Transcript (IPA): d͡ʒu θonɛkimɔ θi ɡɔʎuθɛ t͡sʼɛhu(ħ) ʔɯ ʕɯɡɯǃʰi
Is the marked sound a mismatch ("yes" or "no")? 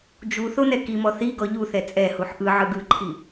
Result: no